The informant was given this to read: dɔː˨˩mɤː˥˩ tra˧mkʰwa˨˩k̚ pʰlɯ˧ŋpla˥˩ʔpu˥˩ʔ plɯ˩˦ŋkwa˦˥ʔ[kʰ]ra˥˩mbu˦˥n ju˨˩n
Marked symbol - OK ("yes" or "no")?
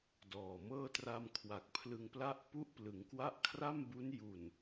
yes